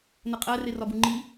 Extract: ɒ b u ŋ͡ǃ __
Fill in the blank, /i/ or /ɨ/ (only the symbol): i